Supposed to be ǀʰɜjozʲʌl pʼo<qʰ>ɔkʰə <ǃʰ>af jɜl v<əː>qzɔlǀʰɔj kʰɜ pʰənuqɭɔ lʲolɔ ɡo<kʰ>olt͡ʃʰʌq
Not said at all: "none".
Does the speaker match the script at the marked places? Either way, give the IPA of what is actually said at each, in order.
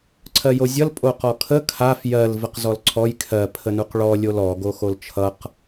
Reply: q, kʰ, ə, x

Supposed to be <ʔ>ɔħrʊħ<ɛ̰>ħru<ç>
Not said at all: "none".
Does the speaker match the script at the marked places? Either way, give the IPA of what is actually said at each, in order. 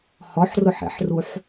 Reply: h, ɛ̰, ħ

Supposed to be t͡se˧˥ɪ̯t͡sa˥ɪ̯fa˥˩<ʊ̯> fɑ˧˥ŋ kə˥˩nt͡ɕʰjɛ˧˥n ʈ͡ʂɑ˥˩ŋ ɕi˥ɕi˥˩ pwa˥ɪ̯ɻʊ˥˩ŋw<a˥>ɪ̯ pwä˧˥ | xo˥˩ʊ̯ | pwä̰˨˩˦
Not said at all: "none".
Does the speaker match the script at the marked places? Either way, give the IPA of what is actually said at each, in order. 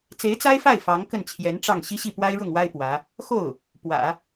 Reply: ɪ̯, a˥

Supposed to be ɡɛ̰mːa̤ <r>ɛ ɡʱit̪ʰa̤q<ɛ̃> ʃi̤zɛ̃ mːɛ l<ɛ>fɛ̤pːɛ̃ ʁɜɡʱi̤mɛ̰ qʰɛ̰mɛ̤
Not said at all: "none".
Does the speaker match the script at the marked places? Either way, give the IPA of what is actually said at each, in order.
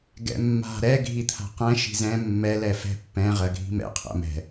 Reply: ɾ, ɛ̃, ɛ

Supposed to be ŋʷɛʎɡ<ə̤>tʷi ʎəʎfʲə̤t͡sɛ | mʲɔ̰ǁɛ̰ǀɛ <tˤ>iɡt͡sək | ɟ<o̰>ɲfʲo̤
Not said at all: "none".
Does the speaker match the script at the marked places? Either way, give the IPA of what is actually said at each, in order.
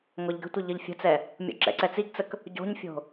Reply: ə̤, t͡s, o̤

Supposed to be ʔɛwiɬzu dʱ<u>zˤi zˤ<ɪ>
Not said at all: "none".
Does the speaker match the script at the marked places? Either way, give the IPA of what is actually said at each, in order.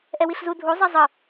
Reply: u, ə

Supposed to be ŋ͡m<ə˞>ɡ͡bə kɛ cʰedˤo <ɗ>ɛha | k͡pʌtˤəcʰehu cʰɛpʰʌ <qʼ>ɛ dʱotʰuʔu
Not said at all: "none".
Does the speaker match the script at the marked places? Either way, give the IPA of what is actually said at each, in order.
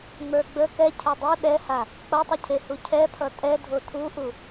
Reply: ə˞, ɗ, tʼ

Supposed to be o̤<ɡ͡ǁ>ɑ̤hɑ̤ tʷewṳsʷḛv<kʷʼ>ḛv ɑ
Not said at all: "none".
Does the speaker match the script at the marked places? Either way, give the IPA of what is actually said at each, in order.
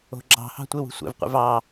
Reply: ɡ͡ǁ, qʷ

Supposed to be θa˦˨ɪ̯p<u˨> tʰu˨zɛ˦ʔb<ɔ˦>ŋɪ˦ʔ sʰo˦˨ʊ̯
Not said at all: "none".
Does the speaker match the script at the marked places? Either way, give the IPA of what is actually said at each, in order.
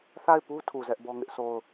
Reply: u˦, ɔ˦

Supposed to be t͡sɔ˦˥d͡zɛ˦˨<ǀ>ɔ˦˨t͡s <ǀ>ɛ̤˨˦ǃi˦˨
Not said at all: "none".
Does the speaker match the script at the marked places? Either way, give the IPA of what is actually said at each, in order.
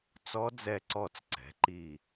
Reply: ǀ, ǀ

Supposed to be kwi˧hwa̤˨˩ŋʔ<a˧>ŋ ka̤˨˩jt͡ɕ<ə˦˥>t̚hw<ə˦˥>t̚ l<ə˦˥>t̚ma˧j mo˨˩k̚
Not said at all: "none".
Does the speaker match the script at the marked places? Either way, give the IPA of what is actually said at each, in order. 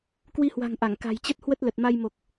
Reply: a˧˩, ə˦˥, ə˦˥, ə˨˩

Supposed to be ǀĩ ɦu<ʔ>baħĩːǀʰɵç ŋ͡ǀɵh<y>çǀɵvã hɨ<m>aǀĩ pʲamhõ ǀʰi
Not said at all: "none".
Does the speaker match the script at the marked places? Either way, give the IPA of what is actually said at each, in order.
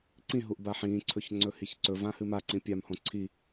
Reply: ʔ, i, m

